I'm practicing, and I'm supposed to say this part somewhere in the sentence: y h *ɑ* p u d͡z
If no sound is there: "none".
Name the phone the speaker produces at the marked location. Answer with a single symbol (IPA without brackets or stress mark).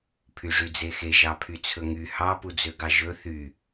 ɑ